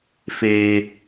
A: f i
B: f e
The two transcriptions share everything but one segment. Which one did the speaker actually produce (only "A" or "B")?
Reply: B